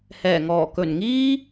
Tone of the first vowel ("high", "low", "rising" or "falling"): low